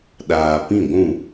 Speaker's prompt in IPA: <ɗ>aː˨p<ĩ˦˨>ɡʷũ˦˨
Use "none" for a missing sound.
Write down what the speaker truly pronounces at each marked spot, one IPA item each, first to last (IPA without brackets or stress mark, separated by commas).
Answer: ɗ, ĩ˦˨